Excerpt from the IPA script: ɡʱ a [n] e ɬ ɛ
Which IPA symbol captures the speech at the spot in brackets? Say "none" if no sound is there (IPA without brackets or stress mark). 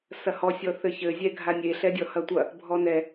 nʲ